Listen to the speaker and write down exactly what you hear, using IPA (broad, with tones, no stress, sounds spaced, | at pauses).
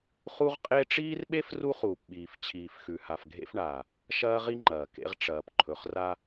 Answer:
χ u˦ ʁ qʼ e˦ ʈ͡ʂ iː˦ r ɓ e˦ f r u˦ χ uː˨ p ɓ iː˨ f t͡ɕʰ iː˨ f x ʉ˨ h a˨ f ɡʱ ḛ˦ f ɳ aː˨ | ʃ ɐː˦ ʁ i˦ ŋ͡ǃ ɐː˨ k ḛ˦ ʁ ʈ͡ʂ ɐː˨ p ǃʰ ɵ˨ χ r a˦